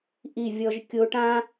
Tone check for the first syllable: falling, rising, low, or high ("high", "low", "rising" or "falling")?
falling